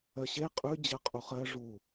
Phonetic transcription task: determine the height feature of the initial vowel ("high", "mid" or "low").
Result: mid